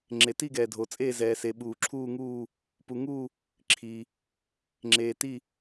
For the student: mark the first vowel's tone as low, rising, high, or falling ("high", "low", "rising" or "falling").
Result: low